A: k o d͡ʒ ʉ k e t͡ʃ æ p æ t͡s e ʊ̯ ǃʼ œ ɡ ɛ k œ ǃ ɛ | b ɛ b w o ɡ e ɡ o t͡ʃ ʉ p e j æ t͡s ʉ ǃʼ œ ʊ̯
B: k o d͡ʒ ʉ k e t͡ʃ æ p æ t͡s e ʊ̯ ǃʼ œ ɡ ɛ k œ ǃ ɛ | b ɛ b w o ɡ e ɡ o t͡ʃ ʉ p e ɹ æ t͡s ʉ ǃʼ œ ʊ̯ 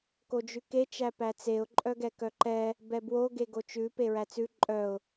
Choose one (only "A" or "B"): B